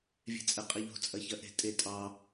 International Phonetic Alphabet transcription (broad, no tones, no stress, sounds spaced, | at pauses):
vʲ e̤ t͡sʼ ɛ qʼ ɛ ʎ o̤ t͡sʼ ɐ ç ɐ ʔ e̤ tʼ e tʼ ɑ